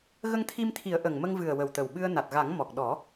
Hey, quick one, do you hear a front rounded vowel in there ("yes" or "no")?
no